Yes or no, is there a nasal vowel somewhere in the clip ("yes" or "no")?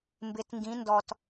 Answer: yes